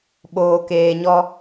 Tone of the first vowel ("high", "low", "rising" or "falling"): low